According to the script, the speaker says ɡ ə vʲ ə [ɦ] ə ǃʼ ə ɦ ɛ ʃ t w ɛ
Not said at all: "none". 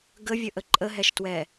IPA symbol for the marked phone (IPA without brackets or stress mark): ʔ